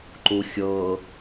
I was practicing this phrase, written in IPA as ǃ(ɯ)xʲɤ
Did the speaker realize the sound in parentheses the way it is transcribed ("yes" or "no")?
no